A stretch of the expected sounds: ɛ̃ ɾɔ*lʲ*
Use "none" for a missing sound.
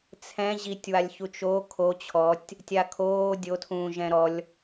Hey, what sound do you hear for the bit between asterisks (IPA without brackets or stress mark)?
lʲ